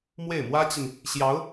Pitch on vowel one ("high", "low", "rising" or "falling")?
falling